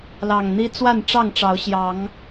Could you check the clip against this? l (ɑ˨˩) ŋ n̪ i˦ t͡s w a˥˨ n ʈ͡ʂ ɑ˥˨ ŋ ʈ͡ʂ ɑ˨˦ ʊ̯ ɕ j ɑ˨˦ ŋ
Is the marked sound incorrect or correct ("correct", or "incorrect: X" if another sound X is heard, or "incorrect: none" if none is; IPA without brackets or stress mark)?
correct